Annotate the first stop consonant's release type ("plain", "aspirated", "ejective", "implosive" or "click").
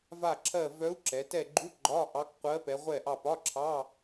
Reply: click